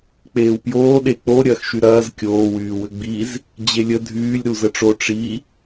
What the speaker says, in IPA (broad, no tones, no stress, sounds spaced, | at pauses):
k͡p eː w p j oː ɗ e k͡p o ɾʲ ɐː x ʃ y ɾ ɐː z kʲ oː w yː w ʏ ɡ͡b i z | d͡ʑ e lʲ ə dʱ yː lʲ ɾ u z ə ʈ͡ʂ o ʈ͡ʂ i